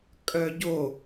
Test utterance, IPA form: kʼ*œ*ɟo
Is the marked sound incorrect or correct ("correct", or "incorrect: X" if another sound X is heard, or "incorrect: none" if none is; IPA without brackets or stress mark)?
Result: correct